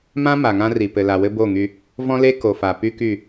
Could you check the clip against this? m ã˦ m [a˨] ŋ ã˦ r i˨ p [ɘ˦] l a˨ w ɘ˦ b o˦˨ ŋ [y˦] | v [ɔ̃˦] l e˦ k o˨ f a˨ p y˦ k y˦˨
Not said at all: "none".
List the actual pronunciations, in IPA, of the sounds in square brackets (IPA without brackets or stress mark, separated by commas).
a˨, ɘ˨, y˦, ɔ̃˦